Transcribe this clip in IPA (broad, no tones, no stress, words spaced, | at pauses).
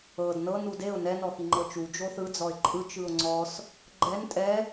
ɤd nɤ nudeʊ̯ nɛnɔxi ŋ͡ǃɤt͡ʃu d͡ʒoθɯ d͡zɔɪ̯ǃʼɯ t͡ʃɯʊ̯ŋ͡ǀɔs | ɡ͡ǃɛn tʼɛ